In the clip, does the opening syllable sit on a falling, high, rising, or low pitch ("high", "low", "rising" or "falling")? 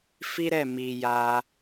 high